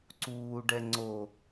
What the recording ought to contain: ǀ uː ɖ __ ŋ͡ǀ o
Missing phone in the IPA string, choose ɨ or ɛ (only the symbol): ɛ